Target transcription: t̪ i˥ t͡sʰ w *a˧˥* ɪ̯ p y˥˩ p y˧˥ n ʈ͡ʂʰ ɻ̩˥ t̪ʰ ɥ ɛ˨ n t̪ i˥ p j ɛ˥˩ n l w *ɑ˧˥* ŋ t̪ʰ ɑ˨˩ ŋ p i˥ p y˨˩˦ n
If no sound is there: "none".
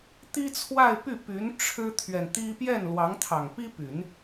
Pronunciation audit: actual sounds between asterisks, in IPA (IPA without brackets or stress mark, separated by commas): a˥˧, ɑ˧˥